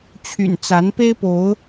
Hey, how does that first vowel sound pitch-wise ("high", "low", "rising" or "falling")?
low